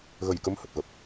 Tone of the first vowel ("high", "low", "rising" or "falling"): low